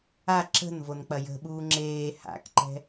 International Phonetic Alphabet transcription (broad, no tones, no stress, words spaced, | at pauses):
a ǁə̤nvonk͡pɐ jə̤ɓuː ŋ͡ǁeː ha̰kǃɛ̤